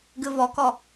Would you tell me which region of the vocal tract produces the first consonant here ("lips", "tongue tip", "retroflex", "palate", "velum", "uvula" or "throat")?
velum